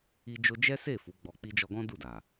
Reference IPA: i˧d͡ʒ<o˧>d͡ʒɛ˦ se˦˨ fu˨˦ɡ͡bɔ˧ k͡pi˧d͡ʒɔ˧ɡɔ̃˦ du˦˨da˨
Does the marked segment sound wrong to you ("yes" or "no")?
no